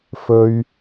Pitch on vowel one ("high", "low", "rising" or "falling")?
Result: high